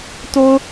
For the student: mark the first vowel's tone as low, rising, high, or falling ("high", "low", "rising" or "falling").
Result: low